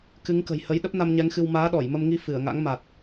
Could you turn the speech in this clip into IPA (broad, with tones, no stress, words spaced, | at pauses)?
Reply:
kɨ˨˦ŋkə̤˨˩jhə˨˦j ɗə˦˥p̚na˧mɲɛ˨˦ŋxɨ˧w maː˨˦ɗɔ˧˩jmə˧mŋi˧ fɨ˧˩ə̯ŋa̰˧˥ŋma˨˩t̚